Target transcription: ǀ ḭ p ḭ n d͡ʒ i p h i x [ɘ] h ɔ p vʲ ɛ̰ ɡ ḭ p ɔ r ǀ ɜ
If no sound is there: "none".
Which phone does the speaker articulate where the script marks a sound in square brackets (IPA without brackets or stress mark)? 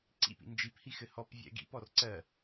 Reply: ɘ